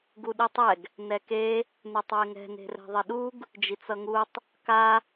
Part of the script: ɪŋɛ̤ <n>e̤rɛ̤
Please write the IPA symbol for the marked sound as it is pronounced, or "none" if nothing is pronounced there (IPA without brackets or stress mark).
n